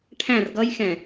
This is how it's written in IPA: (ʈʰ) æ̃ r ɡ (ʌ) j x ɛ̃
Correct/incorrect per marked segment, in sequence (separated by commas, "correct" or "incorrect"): correct, correct